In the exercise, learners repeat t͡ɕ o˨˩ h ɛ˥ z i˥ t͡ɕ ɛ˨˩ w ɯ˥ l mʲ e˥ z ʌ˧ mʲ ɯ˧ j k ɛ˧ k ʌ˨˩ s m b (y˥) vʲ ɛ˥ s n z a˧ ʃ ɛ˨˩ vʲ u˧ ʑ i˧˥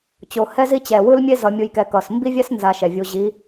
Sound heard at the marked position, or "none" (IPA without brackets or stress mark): i˥